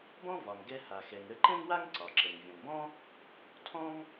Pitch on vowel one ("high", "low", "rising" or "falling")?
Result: high